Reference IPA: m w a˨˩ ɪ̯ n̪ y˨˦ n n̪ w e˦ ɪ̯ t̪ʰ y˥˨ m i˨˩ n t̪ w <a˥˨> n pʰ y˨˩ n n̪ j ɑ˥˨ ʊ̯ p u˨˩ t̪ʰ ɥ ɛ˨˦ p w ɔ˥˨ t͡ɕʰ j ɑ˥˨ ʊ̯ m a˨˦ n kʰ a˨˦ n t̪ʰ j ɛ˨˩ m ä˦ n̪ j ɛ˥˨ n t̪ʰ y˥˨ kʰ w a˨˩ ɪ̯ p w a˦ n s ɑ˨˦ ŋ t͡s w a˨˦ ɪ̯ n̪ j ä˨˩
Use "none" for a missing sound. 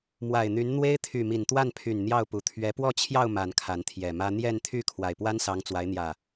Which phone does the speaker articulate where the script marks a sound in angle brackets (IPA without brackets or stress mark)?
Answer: a˥˨